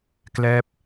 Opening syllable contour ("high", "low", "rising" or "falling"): falling